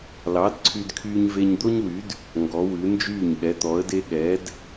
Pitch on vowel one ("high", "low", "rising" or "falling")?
rising